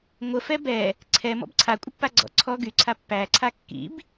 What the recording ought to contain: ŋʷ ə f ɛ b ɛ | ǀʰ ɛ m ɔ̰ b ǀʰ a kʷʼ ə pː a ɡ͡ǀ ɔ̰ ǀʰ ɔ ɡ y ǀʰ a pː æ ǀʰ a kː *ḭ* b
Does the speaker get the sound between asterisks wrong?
no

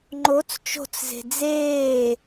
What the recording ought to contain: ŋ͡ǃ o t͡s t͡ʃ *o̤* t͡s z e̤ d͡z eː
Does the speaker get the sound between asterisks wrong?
no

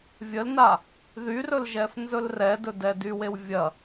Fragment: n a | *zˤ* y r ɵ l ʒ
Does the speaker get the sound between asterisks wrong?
yes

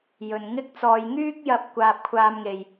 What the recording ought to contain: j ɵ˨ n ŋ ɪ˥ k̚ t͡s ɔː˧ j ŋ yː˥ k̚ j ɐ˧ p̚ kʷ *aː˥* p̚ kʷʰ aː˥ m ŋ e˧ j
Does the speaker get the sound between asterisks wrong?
no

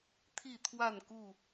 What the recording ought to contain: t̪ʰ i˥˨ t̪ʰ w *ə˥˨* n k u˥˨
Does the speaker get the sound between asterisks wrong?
yes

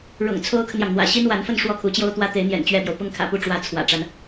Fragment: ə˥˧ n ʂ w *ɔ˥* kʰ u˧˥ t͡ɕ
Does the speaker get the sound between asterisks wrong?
yes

